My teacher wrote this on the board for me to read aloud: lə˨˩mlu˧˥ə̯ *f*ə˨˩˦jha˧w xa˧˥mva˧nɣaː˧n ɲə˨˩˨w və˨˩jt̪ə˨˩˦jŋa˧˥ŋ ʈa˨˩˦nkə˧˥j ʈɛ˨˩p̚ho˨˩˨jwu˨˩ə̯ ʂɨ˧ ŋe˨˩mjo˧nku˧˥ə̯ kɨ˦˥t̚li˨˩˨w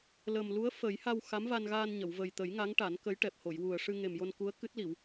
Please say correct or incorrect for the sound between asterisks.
correct